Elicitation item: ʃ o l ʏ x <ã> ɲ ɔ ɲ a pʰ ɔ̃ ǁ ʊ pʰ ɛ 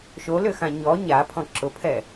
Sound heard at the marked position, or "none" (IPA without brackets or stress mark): ã